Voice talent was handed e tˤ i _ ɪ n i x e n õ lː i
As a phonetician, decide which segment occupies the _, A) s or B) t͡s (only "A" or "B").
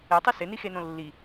A